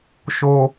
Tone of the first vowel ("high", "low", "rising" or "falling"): high